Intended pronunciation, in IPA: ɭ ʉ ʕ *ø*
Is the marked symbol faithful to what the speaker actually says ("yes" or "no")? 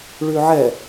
no